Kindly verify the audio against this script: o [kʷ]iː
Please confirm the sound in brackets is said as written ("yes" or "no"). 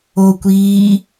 yes